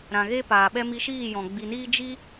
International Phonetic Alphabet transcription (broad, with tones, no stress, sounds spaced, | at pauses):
ɾ ã˨ ɣ e˦ p aː˨ ɓ ɛ˦ m i˧ ʃ iː˦˨ j ɔ̃˨ ɡ͡b i˨ n iː˦ d͡ʒ i˦